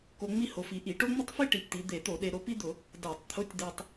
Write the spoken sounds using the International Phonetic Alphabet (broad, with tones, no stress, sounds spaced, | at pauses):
k o˧ ŋ͡m i˥ h o˩˧ f i˩˧ ʔ i˧˩˧ ʈ o˥ ŋ͡m ɪ˥ tˤ f i˥ ʈ i˩˧ p t̪ i˩˧ d̪ e˧˩˧ t̪ o˧˩˧ ɗ e˧ ɾ o˧ p i˥ d̪ ʊ˧˩˧ | d a˧˩˧ tˤ t̪ʰ ʊ˧˥˧ tʲ d̪ e˧ tˤ